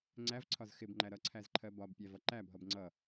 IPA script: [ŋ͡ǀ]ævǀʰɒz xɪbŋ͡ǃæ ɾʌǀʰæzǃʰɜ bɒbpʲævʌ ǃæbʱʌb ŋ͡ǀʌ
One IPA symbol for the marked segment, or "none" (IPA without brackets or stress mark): ŋ͡ǀ